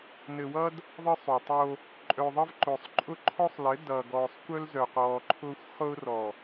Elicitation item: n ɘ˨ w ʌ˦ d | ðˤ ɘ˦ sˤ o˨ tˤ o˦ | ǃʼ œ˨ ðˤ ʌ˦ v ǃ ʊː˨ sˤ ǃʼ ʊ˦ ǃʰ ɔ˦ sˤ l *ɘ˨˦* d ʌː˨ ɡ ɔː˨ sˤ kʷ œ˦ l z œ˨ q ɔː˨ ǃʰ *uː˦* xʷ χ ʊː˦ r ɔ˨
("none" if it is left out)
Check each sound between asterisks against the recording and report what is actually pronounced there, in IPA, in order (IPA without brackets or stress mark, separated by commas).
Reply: ɘ˨˦, ʊː˦